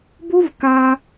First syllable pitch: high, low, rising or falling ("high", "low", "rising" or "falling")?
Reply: high